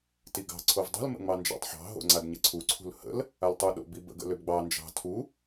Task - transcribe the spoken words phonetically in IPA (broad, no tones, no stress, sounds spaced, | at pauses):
t i ɡ ɑ̤ ǀʰ o v dˤ ṳ l m ə̰ ŋ͡m ɑ n d͡ʒ ɑ̰ tˤ ħ ɑ̤ ɦ o̰ ŋ͡ǀ a d ɲ ə ǀʰ u ǀʰ ṳ l h ə̰ l | a l tˤ u ɗ o̰ b i b ə̰ ɡ ə̰ l ø b ɡ͡b ɑ n d͡ʒ ɑ̤ tʰ u